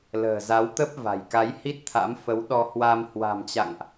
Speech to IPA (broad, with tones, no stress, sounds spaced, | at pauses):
l ə̤ː˨˩ z a˨˦ w t̪ ə˦˥ p̚ v a̤˨˩ j k a˨˦ j h i˦˥ t̚ t̪ʰ a̰˧˥ m f ə˨˦ w ɗ ɔ˧ h w a˧ m h w a̤˨˩ m t͡ɕ a̰˧˨ ŋ ʔ